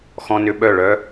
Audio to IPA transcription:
x ɔ̃˧ n ʏ˧ ɓ œ˧˩ ɭ œ˧

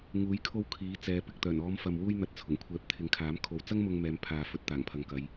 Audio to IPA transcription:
ŋ uː˨˥ j kʰ o˧ w kʰ iː˨˥ t͡s ɛː˨˧ p ɪ˨ k̚ t̪ œː˨˩ n ɔː˨˧ m f ɐ˨ m w uː˧ j n̪ ɐ˨˥ t̚ t͡sʰ ʊ˨˩ ŋ kʷʰ ɛː˨˥ p̚ t̪ʰ ɪ˨˥ ŋ kʰ aː˨˥ m kʰ o˨ w t͡s ɐ˥ ŋ m ʊ˧ ŋ m ɛː˨˧ m pʰ aː˨ f ɵ˨˥ t̚ t̪ aː˨˩ ŋ pʰ ɐ˨ ŋ k ɐ˨˧ j

